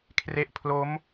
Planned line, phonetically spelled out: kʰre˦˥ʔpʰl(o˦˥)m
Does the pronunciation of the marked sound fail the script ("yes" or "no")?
no